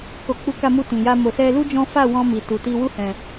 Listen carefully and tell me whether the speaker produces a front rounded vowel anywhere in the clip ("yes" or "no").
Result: no